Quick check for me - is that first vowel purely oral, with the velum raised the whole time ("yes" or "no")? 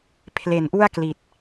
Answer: yes